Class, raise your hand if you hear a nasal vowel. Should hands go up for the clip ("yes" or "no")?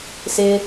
no